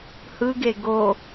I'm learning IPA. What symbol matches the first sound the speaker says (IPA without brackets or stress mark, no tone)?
h